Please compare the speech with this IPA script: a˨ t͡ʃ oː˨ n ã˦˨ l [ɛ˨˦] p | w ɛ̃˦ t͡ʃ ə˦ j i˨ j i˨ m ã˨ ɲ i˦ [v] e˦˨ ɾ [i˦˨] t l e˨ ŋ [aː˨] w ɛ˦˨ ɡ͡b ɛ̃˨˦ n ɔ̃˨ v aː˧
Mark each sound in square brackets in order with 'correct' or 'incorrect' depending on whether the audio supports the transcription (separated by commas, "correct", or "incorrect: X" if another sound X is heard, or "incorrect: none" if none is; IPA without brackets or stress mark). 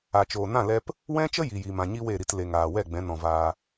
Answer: incorrect: ɛ˧, incorrect: w, correct, correct